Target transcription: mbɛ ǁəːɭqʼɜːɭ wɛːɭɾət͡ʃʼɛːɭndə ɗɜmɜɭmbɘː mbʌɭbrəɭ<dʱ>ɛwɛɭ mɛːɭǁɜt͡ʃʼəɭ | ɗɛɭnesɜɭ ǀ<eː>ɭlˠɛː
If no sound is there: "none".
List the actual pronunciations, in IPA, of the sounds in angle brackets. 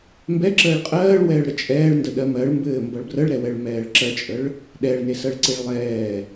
ɾ, e

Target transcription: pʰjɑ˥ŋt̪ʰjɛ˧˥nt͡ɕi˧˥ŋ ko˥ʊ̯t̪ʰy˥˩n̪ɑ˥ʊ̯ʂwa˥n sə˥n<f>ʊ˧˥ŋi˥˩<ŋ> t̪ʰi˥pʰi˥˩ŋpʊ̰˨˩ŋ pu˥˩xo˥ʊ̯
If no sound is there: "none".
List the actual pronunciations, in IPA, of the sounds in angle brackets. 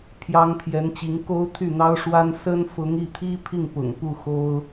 f, none

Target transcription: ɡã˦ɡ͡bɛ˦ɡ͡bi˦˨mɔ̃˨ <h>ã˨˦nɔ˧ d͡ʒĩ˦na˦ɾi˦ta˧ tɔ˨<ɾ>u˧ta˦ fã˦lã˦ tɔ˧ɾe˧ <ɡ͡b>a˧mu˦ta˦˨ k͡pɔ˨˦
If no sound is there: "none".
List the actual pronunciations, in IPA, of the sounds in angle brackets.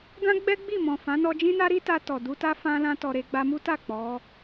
f, d, ɡ͡b

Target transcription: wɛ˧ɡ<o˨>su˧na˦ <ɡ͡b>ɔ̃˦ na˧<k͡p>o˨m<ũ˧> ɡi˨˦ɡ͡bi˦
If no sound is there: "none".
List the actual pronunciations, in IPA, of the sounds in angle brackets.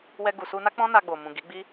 u˨, k͡p, ɡ͡b, ũ˨

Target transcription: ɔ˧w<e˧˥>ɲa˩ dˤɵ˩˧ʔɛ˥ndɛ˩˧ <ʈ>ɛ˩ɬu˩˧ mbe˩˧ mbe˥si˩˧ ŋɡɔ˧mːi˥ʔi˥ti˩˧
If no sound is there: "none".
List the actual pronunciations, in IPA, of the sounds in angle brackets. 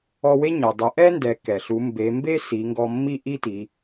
e˥, k

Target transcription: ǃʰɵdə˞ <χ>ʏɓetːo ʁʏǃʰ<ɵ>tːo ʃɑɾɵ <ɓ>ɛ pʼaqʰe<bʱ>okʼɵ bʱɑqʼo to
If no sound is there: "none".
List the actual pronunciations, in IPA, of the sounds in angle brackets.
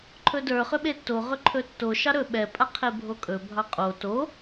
χ, ɵ, ɓ, bʱ

